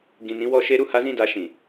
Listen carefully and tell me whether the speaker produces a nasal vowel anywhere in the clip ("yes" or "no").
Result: yes